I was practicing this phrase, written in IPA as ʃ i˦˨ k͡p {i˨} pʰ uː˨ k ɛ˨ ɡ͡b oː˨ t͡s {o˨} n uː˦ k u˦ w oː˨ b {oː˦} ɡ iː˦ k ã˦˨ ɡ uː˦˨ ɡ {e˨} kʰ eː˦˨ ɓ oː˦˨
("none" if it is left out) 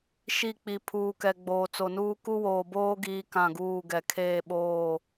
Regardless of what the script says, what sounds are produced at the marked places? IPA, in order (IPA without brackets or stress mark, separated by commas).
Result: i˨, o˨, oː˦, ɛ˨